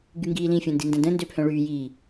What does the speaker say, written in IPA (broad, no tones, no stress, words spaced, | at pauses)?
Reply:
ɡyŋɡiːlĩ fʲõndində̃də̃ ndøpʰœ̃ɭyːjiː